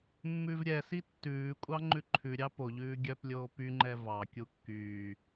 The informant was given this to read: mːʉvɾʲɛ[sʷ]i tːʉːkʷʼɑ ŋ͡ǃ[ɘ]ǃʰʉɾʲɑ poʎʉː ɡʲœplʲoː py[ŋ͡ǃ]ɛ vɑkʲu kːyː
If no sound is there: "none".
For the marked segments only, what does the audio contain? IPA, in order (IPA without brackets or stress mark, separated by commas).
s, ʉ, ŋ͡ǃ